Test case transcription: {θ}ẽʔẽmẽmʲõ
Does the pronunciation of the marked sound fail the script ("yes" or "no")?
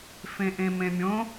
yes